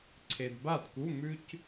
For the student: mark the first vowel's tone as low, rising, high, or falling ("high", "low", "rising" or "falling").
low